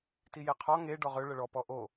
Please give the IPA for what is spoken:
tijeqʰɔ ŋe ɖɔʁø ɭəɭɔ pɔʔo

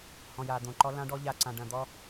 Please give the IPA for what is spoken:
hɔ̃˨ja˨d̪õ˨ǃɔ˦ lã˦ɖɔ˦ ʎa˦ǀã˨ɖɐ̃˨ d̪ɔ˦

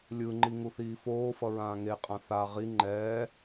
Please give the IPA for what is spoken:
lʲɯŋ͡ǃi ŋuθiːfoːfʌ ɹãːŋeqʼã θa ʁi ŋ͡ǃɛː

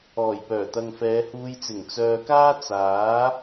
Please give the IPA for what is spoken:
ɔː˨˩jpœː˨˩t̪ɐ˨ŋ fɛː˨˧huː˧jt͡sɪ˨˩ŋ t͡sœː˨kaː˥ t͡saː˨˥

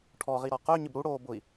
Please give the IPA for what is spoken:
ʈʰɔʁiɾɔ qʊy̯ɲɪb ɾuɽoː bʊi̯

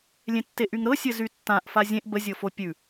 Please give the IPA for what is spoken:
lʲẽtːeʔyŋɾɤ sʲɘzytːãʔ fazʲẽʔ bəzʲɤfo pʲʉ

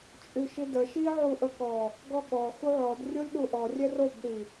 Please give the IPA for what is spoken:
t͡ʃʼyʃidə ʃi ʕuʔəkɔ | ɡɔɠɔ xuʕɔd rʲolʲɗuʔɔ rʲɛrob ɗi

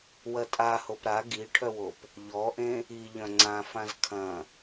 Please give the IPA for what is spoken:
wɐtʼahop ɾa ɡiʈʰœwop | ʎɔʔẽ | iʎœ̃ ŋ͡ǀãfãz kʰɐ̃

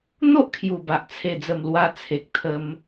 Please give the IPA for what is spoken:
n̪o˦ʔkʰju˨˩ba˨ʔ t͡sʰe˨˩d͡zə˨˩m lwa˧t͡sʰe˨k̚t̪ʰə˧m

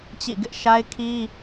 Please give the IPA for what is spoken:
t͡ɕḭ˦˨ ɡɪ˦ʔʃa˦ɪ̯kʰi˦

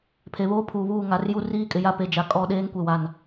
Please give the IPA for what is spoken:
pʰe˨βoː˦pʰuː˨βuː˦˨ ŋa˨rju˦ riː˦kʼɪ˨ja˦pe˨ d͡ʒa˨kʼɔ˦˨ ɗeː˦ŋkʷe˨wa˨n

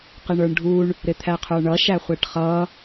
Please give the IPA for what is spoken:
qɪɳə˞ɳɖʱuɳ | ɾɪt̪ʰæqʰə˞ɳʌ ʃæχʷɛʈχʌ

